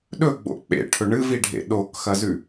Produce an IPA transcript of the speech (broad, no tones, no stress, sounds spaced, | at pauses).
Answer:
ɗ ɵ ɡ͡b o̰ k͡p ḛ ʈʰ ɵ ɳ ɨ v i ɖʱ ḛ ɗ o k x ɐ z ʉ